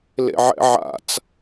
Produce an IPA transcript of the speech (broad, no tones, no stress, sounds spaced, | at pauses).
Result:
l ḛ ʕ ɛ̰ ʕ a̰ t͡s